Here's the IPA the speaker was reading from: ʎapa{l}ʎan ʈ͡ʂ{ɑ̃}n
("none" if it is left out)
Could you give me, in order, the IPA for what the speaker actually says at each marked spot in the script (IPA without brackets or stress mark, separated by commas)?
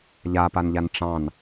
n, ɑ̃